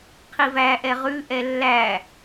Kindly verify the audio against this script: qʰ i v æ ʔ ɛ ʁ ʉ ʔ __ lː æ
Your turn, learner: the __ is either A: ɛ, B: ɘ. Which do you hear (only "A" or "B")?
A